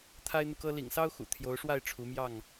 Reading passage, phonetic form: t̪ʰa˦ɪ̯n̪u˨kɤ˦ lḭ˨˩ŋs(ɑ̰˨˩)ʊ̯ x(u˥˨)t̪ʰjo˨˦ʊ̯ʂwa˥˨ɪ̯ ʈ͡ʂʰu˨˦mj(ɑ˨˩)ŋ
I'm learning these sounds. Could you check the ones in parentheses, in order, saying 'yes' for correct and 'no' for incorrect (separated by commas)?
no, no, no